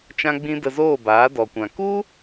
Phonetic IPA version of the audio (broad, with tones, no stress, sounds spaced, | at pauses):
t͡ʃ ã˦ ɡ͡b ĩ˦ d ə˧ z oː˦˨ b aː˨˦ d ɔ˧ kʷ ã˧ k u˦